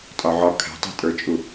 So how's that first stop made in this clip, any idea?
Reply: ejective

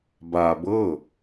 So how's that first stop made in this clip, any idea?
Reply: plain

